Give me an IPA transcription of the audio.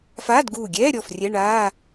f aː˧˥˧ d ɡ uː˧˩ ɡʲ ɛː˧˥˧ ɾʲ ɔ˧˩ f rʲ ɛ˧˥˧ ɳ aː˧˥˧

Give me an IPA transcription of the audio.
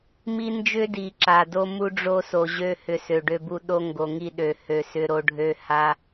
m i˦ n d͡ʒ ʏ˦ d i˨ ǁ a˨ d o˦ m u˦ ɖ͡ʐ o˦ s o˨ ʑ ø˦ h ʏ˨˦ s ø˨ ɖ ø˦ b u˦ ɗ o˦ ŋ ɡ o˨ ŋ i˦˨ ɗ ø˨ h ø˨ s ʏ˦ ɾ o˦ ɖʱ ø˦ h a˦

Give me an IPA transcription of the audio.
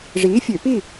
ʐ iː˨˥ fʲ ø˧˩˧ p i˥˨

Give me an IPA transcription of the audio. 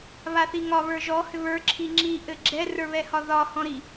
β a θ i ŋ ɒ β ə˞ ʒ ɔ h ʏ β ə˞ ǁʰ i ŋ͡ǁ i ʔ ɘ ɡ͡ǁ ɛ r ə˞ β ɛ h ɒ ð ɒ h ɔ̃ ɾ i

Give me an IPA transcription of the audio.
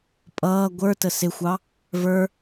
pʼ ʌː ɡʷ ə˞ t ə s ɪ xʷ ɑ | v ə˞

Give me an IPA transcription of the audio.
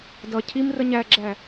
d ʌ cʰ i m r ə ɲ æ ɡ͡ǁ æ

